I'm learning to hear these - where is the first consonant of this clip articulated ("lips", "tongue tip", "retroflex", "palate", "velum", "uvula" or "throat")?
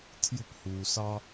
tongue tip